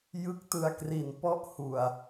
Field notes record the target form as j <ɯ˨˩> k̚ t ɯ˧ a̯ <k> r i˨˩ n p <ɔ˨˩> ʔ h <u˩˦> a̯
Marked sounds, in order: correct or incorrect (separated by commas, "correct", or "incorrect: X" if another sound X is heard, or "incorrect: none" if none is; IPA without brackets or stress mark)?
incorrect: ɯ˦˥, correct, incorrect: ɔ˥˩, incorrect: u˨˩